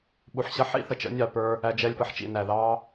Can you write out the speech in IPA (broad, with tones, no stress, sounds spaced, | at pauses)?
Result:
ɓ u˨ ħ ɕ ʌ˧ ħ ḭ˦ θ ə˨ t͡ʃ ə̰˨˦ nʲ ɑ˨ p ə˞˧ | æ˧ d͡ʒ ɛ˧ lʲ p ʌ˨ ħ t͡ʃ ḭ˨ n æ˨ ð ɑ˦